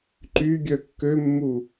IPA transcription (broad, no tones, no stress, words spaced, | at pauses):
ǃy ɡʲœkːømːu